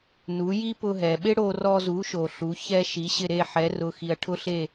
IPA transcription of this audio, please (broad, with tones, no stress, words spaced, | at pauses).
nu˩˥ji˥ pʊ˧ɦɛ˩ɓɪ˥ ɽo˧rɔ˧zu˩˥ʃo˩ ɬu˩˥ çɛ˥ʃi˩˥ɕɪ˥˩ ɾe˥˩ħɛ˩˥rʊ˩˥xi˩ɐ̯ ʈʰʊ˥ɬe˥˩